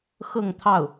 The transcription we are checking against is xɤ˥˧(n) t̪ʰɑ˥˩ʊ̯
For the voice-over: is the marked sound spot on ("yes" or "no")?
no